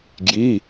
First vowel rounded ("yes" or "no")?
no